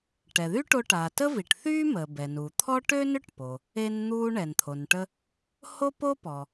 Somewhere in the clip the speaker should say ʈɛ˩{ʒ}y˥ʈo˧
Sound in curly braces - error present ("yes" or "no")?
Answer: yes